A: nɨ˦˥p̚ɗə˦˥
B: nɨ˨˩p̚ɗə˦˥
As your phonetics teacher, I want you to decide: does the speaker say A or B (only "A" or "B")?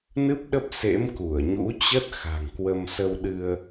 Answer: A